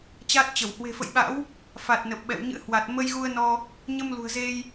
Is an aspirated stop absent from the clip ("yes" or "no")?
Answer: yes